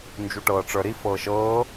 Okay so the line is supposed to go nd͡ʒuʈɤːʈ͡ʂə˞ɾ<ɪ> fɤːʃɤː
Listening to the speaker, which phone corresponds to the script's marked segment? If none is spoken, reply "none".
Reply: i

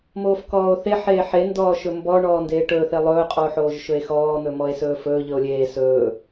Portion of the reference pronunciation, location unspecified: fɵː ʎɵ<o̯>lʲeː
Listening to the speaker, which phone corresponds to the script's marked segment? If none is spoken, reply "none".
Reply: o̯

